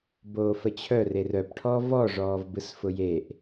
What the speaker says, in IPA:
boːfət͡ɕʰœ rerœp ʈʰɔvɔ ʐɔːvbɯsfʊjeʔ

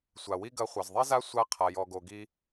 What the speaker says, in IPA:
sʷa˩wi˥ɡɐ˧˥ χʷɐ˩zðˤi˥za˥sʷa˧˥ qʰa˩jɔ˩ɡo˩ɡi˥

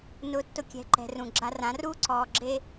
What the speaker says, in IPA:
nʊː˧tːʊ˧kʲɛ̤˨˦ ǃɛ̤˨rũ˨ ɡ͡ǁa˧rã˨˦ruː˦ ǀɔː˨ɡ͡ǁe˧

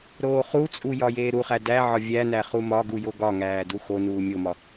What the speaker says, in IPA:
ɾoːχut͡sʼu jɒjeːɾuχæ dæʕɒ vʲænæ χumɒɡu joɡɒŋæː duxonuː mʲomɒ

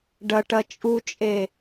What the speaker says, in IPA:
ɖɐʈɐ t͡ʃʼut͡ʃʼe

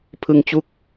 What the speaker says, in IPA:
pʰɯ˧ŋt͡ɕu˦˥k̚

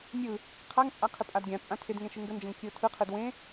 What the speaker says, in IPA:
mʲɯ | qʰaŋt͡sʼa qʰɪpʼadɡʲãt͡sʼã tʰɪdŋẽ ʃɯŋɡənd͡ʒə̃ŋ kʲɯʊ̯tʰɯqʰɯd wẽ

